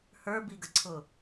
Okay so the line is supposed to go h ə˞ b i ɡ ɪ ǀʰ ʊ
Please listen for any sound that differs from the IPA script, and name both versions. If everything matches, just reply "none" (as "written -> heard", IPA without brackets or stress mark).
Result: ɪ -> ə